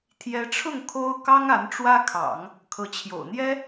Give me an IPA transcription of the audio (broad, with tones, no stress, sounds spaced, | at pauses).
t̪ʰ j ɛ˧˥ ʈ͡ʂʰ ʊ˥˩ ŋ kʰ o˥ ʊ̯ k ɑ˥ ŋ a˧˥ n ʈ͡ʂ w ä˥ kʰ ɑ̰˨˩˦ ŋ | kʰ ɤ˧˥ t͡ɕʰ j o̰˨˩ ʊ̯ n̪ j ɛ˥